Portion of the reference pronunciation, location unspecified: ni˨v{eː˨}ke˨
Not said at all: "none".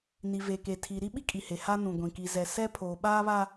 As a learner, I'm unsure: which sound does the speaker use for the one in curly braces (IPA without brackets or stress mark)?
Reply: eː˨